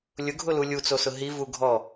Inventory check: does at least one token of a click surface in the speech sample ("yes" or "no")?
no